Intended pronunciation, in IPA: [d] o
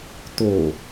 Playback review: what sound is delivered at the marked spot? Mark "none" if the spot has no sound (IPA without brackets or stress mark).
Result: t